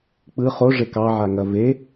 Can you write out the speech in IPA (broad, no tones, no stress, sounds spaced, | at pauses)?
k͡p ɯ χ o ʐ e k ɑ ʕ a ŋ ɐ v e